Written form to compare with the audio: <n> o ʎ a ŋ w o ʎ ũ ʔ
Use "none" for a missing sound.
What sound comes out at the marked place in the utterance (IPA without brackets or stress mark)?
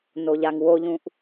n